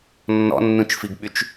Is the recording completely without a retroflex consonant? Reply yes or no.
yes